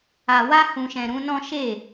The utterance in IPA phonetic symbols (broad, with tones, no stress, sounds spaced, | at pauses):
a˨ w a˧ h ũ˨ ʃ ɛ̃˨ ɾ ũ˨˦ n ɔ̃˦ ʃ e˦˨